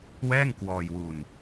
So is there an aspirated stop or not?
no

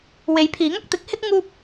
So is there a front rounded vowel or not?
no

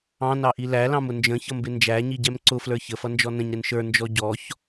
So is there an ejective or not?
no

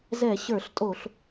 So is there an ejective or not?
yes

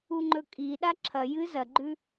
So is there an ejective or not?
yes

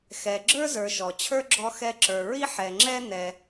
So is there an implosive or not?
no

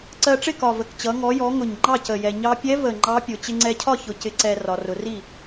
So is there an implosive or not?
no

